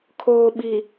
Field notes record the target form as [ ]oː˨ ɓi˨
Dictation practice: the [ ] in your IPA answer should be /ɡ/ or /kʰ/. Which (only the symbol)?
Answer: kʰ